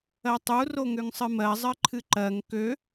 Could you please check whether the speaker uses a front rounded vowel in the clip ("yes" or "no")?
yes